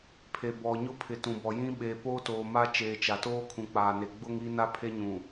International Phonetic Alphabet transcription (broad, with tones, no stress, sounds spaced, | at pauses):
pʰ e˨ b ɔ˨ ɲ ʊ˦˨ pʰ ɪ˨ t ũ˨ b ɔ˨ j ĩ˦ ɓ eː˨ p oː˦ t oː˨ m a˦ t͡ʃ eː˨ t͡ʃ a˨ t oː˦ kʰ ũ˨ k͡p aː˨ n e˨ ɡ͡b ʊ˦ ŋ i˦ n a˦ pʰ e˦ ɲ ũ˨